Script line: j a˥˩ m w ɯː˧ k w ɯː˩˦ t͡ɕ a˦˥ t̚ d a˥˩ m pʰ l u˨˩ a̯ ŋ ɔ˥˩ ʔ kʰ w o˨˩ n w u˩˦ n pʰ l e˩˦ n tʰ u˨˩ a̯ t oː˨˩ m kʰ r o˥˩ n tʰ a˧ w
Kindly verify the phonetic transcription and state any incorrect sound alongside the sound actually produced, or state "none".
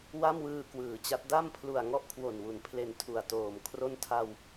j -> w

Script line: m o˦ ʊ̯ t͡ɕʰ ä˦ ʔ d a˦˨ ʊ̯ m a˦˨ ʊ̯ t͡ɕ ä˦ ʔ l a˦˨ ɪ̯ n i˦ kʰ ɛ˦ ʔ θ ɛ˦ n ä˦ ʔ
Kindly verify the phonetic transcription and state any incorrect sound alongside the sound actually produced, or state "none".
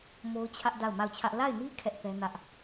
t͡ɕ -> t͡ɕʰ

